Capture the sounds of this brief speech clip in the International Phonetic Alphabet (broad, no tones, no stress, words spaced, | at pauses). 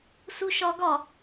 suʃɒɡɒ